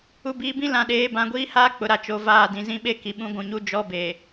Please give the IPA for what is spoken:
u˨biː˨bĩ˦ lã˨ɗeː˨˦ bã˨ɡʷiː˦haː˦ k͡pʊ˨˦ɾa˨ t͡ʃo˨ vaː˦˨dĩ˨ zĩ˦ɓe˦ki˨ɓũ˦ ɡʷũ˨ɲu˦ d͡ʒɔ˦beː˨

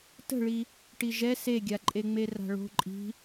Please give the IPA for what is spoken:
tə̤ɭi | ʈiʒɛ seɡʲaǃʼeŋ͡me ra̤ɭo̤ ǃʼi̤

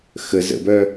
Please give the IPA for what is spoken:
xə zə̰bœ

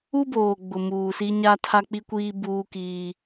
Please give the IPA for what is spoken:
u˦boː˨ɡ͡bʊ˨ muː˨si˦ ɲa˦tʰa˦k͡pi˦kʷiː˦ buː˦kiː˦

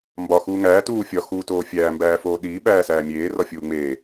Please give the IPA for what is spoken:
mbɒ xuːŋæː tuː fʲɒ xuːtoːfʲæː mbæːfoːɗiː ɓæːsæːmʲeː rɒfʲuːŋ͡meː

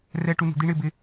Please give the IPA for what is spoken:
rɛ˧ ʈu˧nṳ˨ d̪i˧ɳɪ˦˨bɪ˧

